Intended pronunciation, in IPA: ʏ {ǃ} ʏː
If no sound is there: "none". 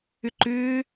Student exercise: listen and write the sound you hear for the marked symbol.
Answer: ǃ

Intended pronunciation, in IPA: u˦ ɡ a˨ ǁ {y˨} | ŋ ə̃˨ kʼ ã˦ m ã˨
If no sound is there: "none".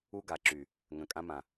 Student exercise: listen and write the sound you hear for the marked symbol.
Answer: y˨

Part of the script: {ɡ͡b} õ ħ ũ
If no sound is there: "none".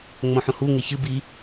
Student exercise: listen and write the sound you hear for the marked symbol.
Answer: ŋ͡m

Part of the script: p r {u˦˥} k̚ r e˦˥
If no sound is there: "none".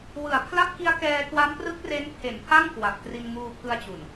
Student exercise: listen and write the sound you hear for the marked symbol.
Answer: ɯ˦˥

